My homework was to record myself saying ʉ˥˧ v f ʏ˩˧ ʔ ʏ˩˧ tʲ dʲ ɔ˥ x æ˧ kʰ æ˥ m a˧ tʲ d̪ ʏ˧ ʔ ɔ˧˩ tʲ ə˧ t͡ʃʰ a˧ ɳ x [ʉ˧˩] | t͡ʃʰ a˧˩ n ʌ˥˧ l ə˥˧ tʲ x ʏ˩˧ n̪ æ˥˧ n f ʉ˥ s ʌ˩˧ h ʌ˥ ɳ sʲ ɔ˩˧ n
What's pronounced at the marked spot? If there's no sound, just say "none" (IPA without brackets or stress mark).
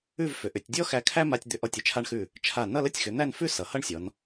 ʉ˧˩